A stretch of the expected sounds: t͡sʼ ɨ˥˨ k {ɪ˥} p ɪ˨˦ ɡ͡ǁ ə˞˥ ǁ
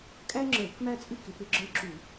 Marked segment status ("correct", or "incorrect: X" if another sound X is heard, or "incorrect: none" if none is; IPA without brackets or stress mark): incorrect: ɪ˨˦